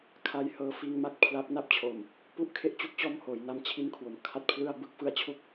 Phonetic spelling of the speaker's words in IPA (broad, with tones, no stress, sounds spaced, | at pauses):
kʰ a˧ j h ɤː˧ f iː˧ ŋ m a˥˩ k̚ pʰ l a˦˥ p̚ n a˥˩ p̚ t͡ɕʰ o˨˩ m | p u˦˥ ʔ kʰ e˦˥ ʔ t͡ɕ u˥˩ k̚ t͡ɕ ɔː˥˩ m h oː˩˦ j n a˦˥ m t͡ɕʰ i˦˥ n kʰ w o˩˦ m kʰ a˥˩ t̚ pʰ l ɯ˥˩ a̯ b ɯ˦˥ k̚ f ɯ˦˥ a̯ t͡ɕʰ u˦˥ k̚